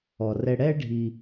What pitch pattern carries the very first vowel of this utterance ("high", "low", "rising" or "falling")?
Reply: low